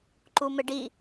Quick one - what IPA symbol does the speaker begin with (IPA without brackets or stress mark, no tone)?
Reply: ǃ